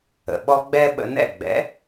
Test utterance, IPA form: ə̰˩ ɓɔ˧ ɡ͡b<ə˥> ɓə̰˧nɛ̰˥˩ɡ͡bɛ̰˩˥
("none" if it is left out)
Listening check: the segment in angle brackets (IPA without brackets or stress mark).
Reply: ɛ˥